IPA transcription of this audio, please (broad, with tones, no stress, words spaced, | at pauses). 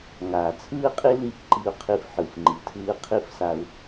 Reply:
ŋaː˨t͡sʰɯː˦qʼi˦li˦˨f ǃi˧u̯qʰi˧fħɯ˨f ŋ͡ǃi˨tʰɯː˧qʰi˦˨fsa˧u̯